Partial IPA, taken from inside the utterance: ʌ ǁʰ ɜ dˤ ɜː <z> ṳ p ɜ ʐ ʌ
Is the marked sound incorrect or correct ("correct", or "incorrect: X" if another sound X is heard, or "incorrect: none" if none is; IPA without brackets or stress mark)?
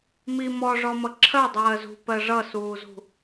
correct